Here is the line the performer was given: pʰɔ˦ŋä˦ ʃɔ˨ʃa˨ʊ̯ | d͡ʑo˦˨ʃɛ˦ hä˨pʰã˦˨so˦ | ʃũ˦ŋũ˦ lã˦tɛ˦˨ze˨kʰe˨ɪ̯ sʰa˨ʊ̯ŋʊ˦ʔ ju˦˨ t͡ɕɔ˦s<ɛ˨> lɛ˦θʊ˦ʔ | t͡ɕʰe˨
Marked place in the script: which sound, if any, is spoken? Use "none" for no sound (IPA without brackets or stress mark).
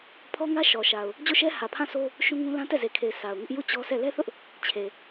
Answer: ɛ˦˨